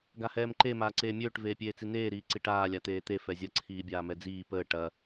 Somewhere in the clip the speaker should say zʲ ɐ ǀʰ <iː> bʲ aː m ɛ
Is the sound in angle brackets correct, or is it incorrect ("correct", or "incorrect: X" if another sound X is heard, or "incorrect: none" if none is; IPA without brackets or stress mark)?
correct